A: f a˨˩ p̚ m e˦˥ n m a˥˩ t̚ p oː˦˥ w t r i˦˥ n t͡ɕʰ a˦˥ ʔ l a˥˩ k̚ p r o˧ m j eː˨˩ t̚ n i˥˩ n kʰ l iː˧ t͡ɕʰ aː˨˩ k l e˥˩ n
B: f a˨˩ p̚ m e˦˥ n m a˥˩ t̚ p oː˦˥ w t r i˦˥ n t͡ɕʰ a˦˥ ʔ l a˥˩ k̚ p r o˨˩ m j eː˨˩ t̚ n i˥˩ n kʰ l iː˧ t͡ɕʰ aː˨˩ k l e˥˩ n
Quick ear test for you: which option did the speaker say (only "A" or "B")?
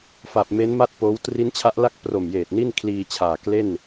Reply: B